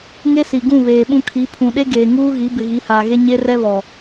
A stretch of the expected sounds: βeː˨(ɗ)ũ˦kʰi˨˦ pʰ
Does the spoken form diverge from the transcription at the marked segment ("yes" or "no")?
yes